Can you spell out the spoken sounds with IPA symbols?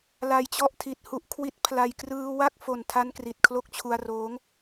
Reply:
l a˧ j t͡ɕ ɔ˥˩ ʔ tʰ i˨˩ t̚ h u˦˥ ʔ kʰ w i˦˥ t̚ pʰ l a˧ j k r ɯː˧ w a˥˩ k̚ f o˨˩ n tʰ a˧ n k r i˨˩ t̚ kʰ l o˦˥ k̚ t͡ɕʰ u˧ a̯ r oː˦˥ ŋ

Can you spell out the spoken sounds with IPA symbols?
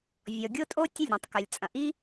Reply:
vʲ ɔ˨ ɡʲ o˦ tʼ o˦ tʲ ə˦˨ lʲ ɾ ĩ˨ tˤ k œ˨ lʲ t͡sʼ ɐ̃˨ ʔ i˦

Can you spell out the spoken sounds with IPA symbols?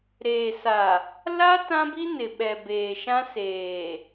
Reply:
ɾ eː˨ s a˨ | l a˦ t ã˦ b i˦ n ɪ˨ ɓ ɛ˨ b eː˨ ʃ ã˦ s eː˨

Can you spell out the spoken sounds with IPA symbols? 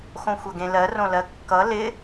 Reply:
x õ xʷ ʌ ɡ ẽ l ɜ r õ l ɜ kː ʌ l ɪ

